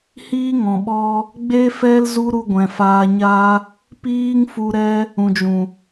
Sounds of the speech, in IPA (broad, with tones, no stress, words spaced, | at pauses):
hiː˦ŋɔ̃˨ɓɔ˦ | ɡ͡be˦fɛ˦l zu˧ ɾu˧ɡʷɛ̃˨faː˧ɲaː˦ | piː˦ŋfu˧ɾɛ˦ | ũ˨d͡ʒũ˨